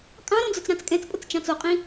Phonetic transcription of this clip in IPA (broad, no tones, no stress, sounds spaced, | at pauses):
kʼ ɑ̃ ɾ õ d͡z ʊ t͡s ɾ ɑ̃ t͡s kʼ ɛ̃ t͡s pʼ ʊ t͡s t͡ʃ ɑ̃ t͡s o qʼ ĩ